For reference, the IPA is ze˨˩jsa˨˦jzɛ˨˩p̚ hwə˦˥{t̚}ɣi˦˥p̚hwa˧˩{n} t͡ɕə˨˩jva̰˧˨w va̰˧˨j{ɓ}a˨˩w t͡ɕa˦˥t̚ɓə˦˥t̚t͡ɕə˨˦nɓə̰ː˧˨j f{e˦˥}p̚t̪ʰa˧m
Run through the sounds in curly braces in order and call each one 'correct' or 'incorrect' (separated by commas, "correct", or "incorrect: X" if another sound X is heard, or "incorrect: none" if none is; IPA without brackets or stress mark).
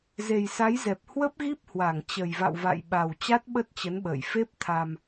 incorrect: p̚, incorrect: ŋ, correct, correct